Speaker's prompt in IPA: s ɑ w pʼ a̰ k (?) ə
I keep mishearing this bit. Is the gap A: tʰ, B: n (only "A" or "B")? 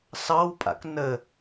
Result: B